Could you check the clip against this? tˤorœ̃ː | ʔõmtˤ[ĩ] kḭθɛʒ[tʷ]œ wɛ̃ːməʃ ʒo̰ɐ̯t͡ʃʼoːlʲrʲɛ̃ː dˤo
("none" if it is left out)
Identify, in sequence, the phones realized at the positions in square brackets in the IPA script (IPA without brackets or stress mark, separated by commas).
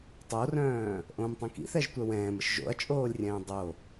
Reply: ĩ, tʷ